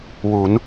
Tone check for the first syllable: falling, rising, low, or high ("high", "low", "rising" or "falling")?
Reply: rising